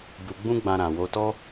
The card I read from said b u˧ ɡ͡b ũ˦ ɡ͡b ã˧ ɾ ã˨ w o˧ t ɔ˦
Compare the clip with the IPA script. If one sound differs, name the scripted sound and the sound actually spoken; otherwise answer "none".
none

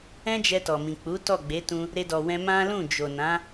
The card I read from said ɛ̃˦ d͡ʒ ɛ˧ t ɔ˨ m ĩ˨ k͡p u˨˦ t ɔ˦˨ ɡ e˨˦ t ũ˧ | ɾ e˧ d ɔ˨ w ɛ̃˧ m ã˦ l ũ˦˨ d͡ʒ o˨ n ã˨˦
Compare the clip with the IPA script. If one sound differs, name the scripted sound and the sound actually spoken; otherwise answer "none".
ɡ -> ɡ͡b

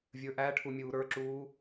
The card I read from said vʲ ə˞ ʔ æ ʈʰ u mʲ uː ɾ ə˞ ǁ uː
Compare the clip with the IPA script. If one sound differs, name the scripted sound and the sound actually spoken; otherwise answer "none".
none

